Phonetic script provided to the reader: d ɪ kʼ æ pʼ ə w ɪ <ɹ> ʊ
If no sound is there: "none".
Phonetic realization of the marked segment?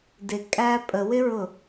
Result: ɹ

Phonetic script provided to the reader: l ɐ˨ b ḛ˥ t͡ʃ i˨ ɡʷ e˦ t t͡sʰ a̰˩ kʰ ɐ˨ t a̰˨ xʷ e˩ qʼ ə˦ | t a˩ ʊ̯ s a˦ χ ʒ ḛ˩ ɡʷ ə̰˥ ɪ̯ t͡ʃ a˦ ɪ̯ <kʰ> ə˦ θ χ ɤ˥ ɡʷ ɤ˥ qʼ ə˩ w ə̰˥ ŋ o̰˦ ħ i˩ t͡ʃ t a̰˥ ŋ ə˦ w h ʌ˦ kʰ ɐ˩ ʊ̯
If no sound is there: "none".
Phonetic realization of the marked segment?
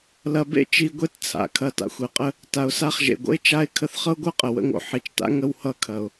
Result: kʰ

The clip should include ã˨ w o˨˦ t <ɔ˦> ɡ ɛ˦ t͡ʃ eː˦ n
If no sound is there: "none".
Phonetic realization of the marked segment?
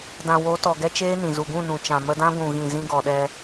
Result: ɔ˨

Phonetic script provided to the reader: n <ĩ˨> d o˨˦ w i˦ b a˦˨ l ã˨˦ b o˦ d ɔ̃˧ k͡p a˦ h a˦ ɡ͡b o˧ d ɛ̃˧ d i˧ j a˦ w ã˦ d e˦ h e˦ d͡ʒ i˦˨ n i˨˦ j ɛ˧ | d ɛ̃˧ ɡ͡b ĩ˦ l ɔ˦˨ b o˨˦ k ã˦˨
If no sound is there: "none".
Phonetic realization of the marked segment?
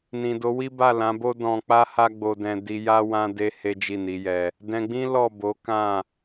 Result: ĩ˨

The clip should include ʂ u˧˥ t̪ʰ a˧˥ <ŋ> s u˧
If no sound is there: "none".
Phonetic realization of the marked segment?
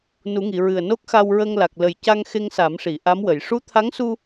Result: ŋ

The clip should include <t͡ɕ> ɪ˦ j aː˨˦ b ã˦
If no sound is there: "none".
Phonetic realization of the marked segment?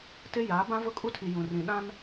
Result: t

